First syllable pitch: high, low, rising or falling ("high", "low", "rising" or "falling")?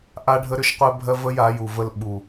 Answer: high